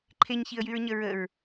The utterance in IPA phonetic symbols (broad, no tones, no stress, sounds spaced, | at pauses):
ǃʰ e ɲ ç i ə̯ j y ɹ ɲ ə ɹ ə ɹ